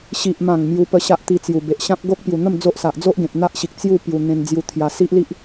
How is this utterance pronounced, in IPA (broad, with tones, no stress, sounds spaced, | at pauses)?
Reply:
ɕ i˨ ʔ m ã˨˩ ŋ m j u˧ p ə˧ ɕ a˦ ʔ t̪ i˧ t͡s j u˨˩ b e˨ ʔ ɕ ã˦ p̚ ɡ o˦ k̚ p j u˨˩ n̪ ə˥˧ m d͡z o˦ ʔ s a˨ ʔ d͡z o˦ ʔ ɡ ẽ˨ p̚ n̪ a˦ ʔ ɕ i˨ k̚ t͡s j u˥˧ p j u˧ n̪ ẽ˧ n d͡z j u˧ t̪ʰ j a˧ s i˦ ʔ l i˦ ʔ